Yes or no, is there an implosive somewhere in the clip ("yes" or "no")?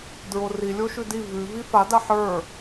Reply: no